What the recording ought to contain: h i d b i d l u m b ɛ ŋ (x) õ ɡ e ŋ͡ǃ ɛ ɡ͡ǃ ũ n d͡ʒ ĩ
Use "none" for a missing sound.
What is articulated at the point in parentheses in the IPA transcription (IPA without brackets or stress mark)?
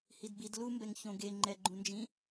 ç